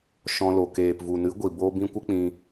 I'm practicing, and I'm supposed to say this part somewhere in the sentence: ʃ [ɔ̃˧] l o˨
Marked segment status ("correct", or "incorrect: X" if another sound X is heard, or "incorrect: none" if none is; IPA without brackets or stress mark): correct